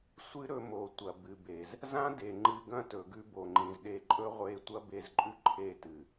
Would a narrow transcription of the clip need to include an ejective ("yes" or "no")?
yes